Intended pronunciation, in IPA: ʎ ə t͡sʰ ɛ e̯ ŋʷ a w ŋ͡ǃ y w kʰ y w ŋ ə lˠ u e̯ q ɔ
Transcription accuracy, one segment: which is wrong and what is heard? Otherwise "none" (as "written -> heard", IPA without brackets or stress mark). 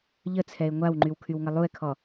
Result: q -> kʰ